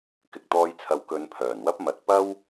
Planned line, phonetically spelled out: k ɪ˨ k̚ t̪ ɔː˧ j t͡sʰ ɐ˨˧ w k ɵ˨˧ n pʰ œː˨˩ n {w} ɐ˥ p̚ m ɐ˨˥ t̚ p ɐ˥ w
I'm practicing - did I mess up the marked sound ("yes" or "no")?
no